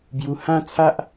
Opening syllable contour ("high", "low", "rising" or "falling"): high